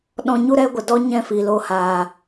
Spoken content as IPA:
ɗ ɔ̃˧ ɲ u˦ ɾ ɛ˦ ɡʷ ə˨ d ɔ˦ ɲ ɛ̃˦˨ f iː˨ l oː˧ h aː˨

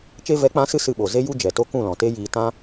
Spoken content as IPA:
t͡ʃ e˧ v ɛ˨˦ k͡p ã˨˦ s ɨ˧ s ɨ˧ ɓ o˨ z e˦ j u˦ d͡ʒ ɛ˨ t o˦ k ũ˦˨ l ɔ̃˨ t e˦ j iː˧ t ã˦

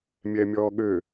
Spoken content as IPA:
mʲ ɛ mʲ ɔː ɠ ø

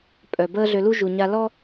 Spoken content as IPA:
pʼ œ˨ b əː˦ ɮ ø˧ l u˦ ʒ u˨ ɲ a˧ l ɔ˦

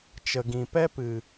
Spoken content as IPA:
t͡ʃ ə˨ ɡ ĩ˨ p ɛ˦ p ɨ˨

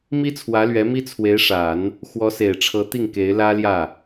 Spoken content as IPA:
m i˥ t͡sʰ w ä˧˥ l ɥ ɛ˧˥ m i˥ t͡sʰ w e˧˥ ɪ̯ ʂ a˨˩˦ n | x w ɔ˧˥ s e˨˩ ɪ̯ ʈ͡ʂʰ ɤ˧˥ t̪ i˥˩ ŋ k e˧˥ ɪ̯ l ä˥ l j ä˥˩

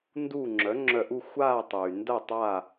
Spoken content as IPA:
n d u˥˨ ŋ͡ǁ œ˩˥ ŋ͡ǁ œ˧˩ ʔ u˥˨ xʷ aː˥˨ tˤ yː˩ n d ɐ˥˨ tˤ aː˥˨

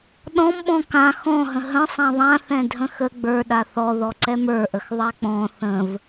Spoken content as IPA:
ɗ ɔ̃ m ɓ ɔ̃ k ã x ɔ̃ ɦ ə̃ ɦ ə̃ sˤ ã ðˤ ã θ ɛ̃ dʱ ə̃ x ə ɡ͡b ə˞ ɗ a θ ɔ ð ɔ ǀ ɛ m ə˞ ʔ ə x ðˤ a k͡p ɔ̃ θ ə̃ v

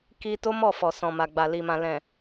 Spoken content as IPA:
k i˧ t o˦ m ɔ˦˨ f ɔ˨ s ɔ̃˨ m a˨ ɡ͡b a˨ l i˨ m ã˨ l ɛ̃˨

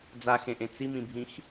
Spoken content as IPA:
d͡z a x ẽ ʔ ẽ t͡s i m ĩ bʱ ĩ x

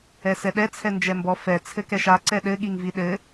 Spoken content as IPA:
ɛ s ɛ ɗ ɛ t͡sʰ ɛ n d͡ʒ ɛ m b ɔ f ɛ t͡sʰ ɘ k ɛ ʃ a ǀ ɛ ɗ ɘ ɠ i ŋ v i ɗ ɘ

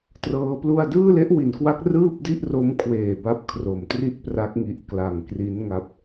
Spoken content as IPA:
t r ɤː˦˥ p l u˥˩ a̯ d ɯː˥˩ l e˦˥ ʔ w i˩˦ n k w a˦˥ k̚ r ɯː˥˩ p̚ d i˥˩ ʔ r o˦˥ m kʰ w eː˨˩ b a˥˩ p̚ kʰ r o˨˩ m t r i˥˩ t̚ p r a˦˥ k̚ ŋ i˨˩ ʔ k l a˨˩ ŋ k r i˦˥ n ŋ a˦˥ p̚

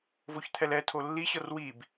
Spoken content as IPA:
v o ç t̪ʰ ɛ l ɛ tʰ o lː i ɕ ɤ r w i b

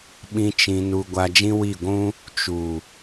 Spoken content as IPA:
ɓ ĩ˦ t͡ʃ ĩ˧ n u˧ ɡʷ a˧ d͡ʒ ĩ˦ w i˦˨ ɡʷ ũ˦ | t͡ʃ u˨

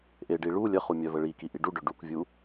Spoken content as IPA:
ʔ e ɖ i ɭ u lʲ ə χ u mʲ œ v ə ɭ i k i ʔ i ɖ u ɖ ø ɖ u k vʲ u

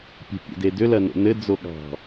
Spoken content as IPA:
pʲ e̤ pʲ o̰ d e d ʏ l ɐ n o̰ n ɘ d͡z o ɠ ɑ̤

